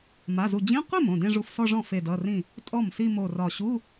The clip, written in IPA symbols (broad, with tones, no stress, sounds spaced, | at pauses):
m a˩˧˩ z u˧˩ d͡ʑ ĩ˧˥˧ qʷ e˥˩ m õ˥˩ d ẽ˥˧ ʐ u˧˩ f s ɔ˥˧ ʐ ɔ̃˥˩ f e˧˩ d ʌ˩˧˩ r ĩ˥˩ | tʼ ɔ˥˩ m s i˥˧ m o˧˩ r ɒ˧˩ ɕ u˧˥˧